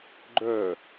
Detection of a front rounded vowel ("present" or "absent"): present